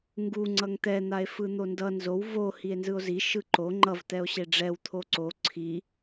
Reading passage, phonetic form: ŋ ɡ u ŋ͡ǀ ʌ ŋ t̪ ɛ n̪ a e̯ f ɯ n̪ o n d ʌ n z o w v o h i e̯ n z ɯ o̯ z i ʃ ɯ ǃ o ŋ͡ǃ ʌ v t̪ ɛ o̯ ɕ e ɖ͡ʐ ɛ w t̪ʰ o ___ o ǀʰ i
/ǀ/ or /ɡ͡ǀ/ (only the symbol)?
ǀ